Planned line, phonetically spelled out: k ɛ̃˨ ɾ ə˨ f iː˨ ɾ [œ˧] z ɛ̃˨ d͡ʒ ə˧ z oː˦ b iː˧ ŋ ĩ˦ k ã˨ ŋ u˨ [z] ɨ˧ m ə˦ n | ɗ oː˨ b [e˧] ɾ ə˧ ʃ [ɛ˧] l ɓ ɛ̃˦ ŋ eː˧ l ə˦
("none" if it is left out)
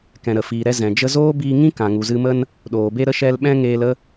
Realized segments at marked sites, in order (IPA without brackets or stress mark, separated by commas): ɛ˧, z, e˧, ɛ˦